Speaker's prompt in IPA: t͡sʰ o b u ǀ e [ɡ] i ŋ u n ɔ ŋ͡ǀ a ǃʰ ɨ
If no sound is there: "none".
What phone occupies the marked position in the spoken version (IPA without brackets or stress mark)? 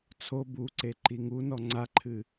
ǃ